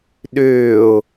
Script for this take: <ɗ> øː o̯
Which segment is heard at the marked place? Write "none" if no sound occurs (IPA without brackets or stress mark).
ɗ